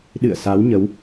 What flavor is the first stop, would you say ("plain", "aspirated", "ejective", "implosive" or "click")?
implosive